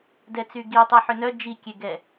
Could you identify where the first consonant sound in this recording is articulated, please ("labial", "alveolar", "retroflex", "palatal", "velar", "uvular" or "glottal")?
alveolar